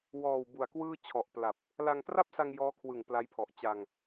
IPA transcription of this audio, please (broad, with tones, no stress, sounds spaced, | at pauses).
w ɔː˨˩ w b u˨˩ a̯ k w ɯː˥˩ t͡ɕʰ ɔ˨˩ ʔ p l a˨˩ p̚ | l a˧ ŋ t r a˥˩ p̚ s a˧ ŋ j ɔː˦˥ kʰ w ɯ˨˩ ŋ p l a˦˥ j pʰ ɔ˨˩ ʔ t͡ɕ a˧ ŋ